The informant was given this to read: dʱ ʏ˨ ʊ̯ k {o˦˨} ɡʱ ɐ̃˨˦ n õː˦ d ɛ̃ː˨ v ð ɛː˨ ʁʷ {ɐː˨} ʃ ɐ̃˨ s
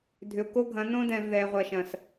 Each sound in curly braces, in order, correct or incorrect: incorrect: o˦, correct

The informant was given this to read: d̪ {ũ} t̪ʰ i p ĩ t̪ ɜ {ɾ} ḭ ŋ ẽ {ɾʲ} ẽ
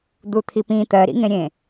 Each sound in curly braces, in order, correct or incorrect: incorrect: u, correct, correct

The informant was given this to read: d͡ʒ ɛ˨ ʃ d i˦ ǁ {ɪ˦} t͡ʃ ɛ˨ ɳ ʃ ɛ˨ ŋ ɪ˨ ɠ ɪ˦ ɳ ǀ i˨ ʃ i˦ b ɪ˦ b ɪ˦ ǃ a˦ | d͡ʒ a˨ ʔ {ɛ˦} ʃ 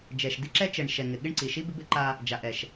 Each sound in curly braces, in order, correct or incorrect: incorrect: ɛ˦, incorrect: ɛ˨

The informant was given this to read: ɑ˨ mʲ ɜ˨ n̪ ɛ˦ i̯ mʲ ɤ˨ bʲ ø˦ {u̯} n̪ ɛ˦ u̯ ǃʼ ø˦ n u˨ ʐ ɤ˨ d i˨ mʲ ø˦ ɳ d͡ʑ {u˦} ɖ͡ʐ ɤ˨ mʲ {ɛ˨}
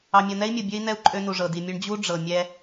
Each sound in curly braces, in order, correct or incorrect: incorrect: i̯, correct, incorrect: ɛ˦

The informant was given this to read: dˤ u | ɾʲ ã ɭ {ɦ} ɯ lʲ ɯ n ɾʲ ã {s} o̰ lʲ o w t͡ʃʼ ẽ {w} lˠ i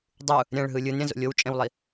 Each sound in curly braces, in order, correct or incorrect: correct, incorrect: z, correct

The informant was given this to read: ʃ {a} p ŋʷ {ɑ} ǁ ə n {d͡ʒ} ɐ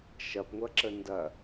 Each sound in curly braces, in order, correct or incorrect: incorrect: ɐ, incorrect: ɐ, incorrect: d

